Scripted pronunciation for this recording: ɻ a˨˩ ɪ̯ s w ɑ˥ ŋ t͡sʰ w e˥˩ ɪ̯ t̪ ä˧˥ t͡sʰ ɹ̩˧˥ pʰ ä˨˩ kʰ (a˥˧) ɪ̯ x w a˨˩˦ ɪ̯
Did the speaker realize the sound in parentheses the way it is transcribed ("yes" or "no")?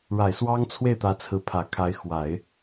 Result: no